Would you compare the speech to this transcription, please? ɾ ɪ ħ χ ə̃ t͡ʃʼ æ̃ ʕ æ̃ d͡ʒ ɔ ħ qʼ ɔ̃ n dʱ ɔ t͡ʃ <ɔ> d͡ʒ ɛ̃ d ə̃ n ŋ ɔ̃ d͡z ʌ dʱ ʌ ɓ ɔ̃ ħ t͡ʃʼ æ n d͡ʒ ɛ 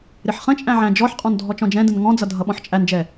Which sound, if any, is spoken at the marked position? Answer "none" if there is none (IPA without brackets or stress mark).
ɔ̃